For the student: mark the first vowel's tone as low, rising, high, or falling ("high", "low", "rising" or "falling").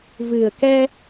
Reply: low